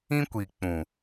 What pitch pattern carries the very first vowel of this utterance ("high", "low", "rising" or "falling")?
high